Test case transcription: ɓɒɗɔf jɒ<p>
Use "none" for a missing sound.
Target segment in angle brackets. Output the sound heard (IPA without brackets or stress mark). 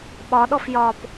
p